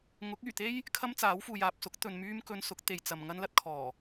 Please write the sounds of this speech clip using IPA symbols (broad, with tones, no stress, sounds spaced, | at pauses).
ŋ ʊ˨˥ k̚ yː˨˩ t̪ e˥ j | kʰ ɐ˥ m t͡s aː˨˥ w f uː˨ j aː˨ p̚ s ʊ˨˥ k̚ t̪ ɵ˨ n m yː˥ m k ɵ˧ n s ʊ˨˥ k̚ t̪ e˨ j t͡s ɐ˨ m ŋ ɐ˥ n l ɐ˥ t̚ kʰ ɔː˨˩